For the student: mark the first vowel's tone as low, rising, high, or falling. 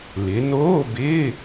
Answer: rising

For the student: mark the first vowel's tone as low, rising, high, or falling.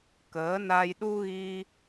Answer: rising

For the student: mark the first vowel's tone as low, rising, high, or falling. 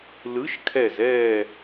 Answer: rising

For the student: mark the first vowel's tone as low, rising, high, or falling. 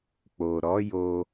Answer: low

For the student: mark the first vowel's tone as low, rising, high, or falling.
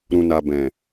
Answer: low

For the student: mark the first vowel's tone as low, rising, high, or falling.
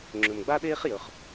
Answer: low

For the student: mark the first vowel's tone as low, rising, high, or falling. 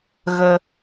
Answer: low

